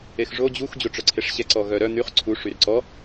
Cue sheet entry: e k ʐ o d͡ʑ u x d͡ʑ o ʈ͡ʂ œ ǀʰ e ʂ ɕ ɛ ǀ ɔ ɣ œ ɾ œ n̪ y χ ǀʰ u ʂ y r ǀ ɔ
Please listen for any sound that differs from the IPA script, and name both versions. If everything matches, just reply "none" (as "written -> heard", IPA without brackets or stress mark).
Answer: k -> x